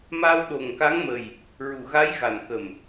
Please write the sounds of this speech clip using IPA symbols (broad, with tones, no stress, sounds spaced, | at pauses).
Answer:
m a˧ w ɗ o˨˩ ŋ k a˧˥ ŋ m ə˨˩ j | ɹ u˨˩ ɣ a˧˥ j ɣ a˨˩ n k ə˨˩ m